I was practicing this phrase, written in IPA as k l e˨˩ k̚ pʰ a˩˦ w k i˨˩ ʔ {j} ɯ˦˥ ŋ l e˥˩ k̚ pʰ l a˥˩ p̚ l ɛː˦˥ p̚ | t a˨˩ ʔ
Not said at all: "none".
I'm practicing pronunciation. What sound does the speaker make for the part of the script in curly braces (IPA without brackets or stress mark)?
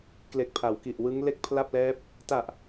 w